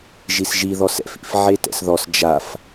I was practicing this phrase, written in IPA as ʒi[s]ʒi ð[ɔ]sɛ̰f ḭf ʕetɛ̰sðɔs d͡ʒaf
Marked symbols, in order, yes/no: yes, yes

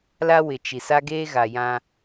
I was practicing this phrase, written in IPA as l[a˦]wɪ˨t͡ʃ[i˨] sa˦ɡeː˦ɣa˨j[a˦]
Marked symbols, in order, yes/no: yes, yes, no

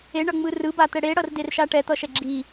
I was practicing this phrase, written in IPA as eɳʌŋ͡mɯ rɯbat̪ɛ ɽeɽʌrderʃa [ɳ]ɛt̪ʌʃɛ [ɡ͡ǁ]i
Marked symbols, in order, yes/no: no, yes

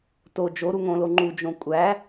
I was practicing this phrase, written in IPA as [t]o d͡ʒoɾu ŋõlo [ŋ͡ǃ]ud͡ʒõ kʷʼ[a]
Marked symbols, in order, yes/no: yes, yes, no

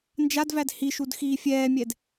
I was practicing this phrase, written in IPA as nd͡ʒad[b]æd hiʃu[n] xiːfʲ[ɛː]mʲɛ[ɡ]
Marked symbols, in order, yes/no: no, no, yes, no

